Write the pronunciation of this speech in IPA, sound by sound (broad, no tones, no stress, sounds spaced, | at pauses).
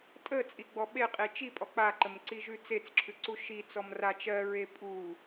tʼ ə t͡sʼ i ɡ͡b ɔ ɓ e qʼ i t͡ʃ i pʼ ɔ k͡p a ǃ ə m ǀ i ʒ ʉ t͡s e t͡s ǁʰ ʉ ǀ u ʃ i t͡s ɔ m r a t͡ʃ ɜ ɹ e pʼ u